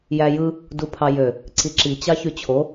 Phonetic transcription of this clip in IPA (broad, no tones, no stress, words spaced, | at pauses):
jæjɯ | dupʰɑjø | ǀiǁi t͡ɕɑçyt͡ɕʰo